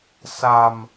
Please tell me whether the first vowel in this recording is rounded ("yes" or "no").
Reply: no